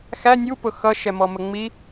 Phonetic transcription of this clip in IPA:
x æ nʲ u p ʊ x ʌ ʃ ɛ m ɔ m ə ŋ͡m i

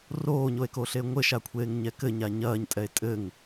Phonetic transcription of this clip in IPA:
r oː ɲ o e̯ k o ɬ e ŋʷ ɘ ʃ a kʷʰ eː ŋ ɲ ɛ k ɘ ɲ a ɲ ɐː ɲ tʼ ɛ e̯ tʼ ɘ ŋ

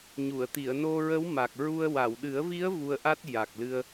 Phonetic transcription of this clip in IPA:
ɲ u˨˩˨ ə̯ t̪ i˨˩˨ ə̯ n o˧ ɹ ə˧˥ w m a˨˩ k̚ ɹ u˧ ə̯ w a˨˩˨ w ɗ ɨ˨˩˦ ə̯ v i˧˥ ə̯ v u˧ ə̯ ʔ a˦˥ t̚ j a˨˩ k̚ l ɨ˧ ə̯

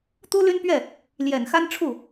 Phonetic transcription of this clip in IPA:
t̪ u˥ l y˥ n p ɥ ɛ˥˩ | l j ɛ˨˩ n x a˥ n ʈ͡ʂʰ u˥˩

